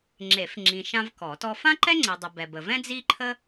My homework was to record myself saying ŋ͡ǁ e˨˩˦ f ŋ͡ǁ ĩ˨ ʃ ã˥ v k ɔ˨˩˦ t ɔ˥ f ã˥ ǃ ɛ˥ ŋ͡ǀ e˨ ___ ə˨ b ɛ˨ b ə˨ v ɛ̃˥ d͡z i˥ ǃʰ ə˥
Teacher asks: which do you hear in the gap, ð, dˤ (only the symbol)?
dˤ